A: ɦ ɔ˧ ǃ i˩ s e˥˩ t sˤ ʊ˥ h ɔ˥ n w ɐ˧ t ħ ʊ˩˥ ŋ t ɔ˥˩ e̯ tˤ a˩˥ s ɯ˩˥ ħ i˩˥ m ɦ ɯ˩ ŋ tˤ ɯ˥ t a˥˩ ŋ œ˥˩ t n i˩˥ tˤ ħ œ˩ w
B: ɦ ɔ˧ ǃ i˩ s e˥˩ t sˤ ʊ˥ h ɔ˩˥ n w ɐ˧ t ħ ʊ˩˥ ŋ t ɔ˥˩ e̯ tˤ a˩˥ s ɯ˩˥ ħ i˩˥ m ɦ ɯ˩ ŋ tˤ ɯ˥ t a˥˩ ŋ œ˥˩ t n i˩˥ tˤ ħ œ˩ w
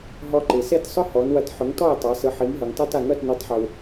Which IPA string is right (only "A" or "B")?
B